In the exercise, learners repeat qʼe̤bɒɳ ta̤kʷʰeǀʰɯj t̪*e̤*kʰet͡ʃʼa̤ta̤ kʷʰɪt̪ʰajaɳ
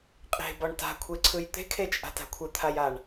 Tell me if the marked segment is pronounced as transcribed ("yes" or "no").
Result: yes